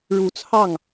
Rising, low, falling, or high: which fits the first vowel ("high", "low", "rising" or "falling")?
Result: low